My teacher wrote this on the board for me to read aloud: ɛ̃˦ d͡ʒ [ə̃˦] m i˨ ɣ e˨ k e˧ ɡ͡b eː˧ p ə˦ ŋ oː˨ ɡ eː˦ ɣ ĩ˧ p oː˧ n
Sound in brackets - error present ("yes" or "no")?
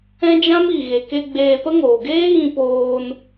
yes